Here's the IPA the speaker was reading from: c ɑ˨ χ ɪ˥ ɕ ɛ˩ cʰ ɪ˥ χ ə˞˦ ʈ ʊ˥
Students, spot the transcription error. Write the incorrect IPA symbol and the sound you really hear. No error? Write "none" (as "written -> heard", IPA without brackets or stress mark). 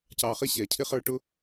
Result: none